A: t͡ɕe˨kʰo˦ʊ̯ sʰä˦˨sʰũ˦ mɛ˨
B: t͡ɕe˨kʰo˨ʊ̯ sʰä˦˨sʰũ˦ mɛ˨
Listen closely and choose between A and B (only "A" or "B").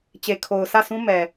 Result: B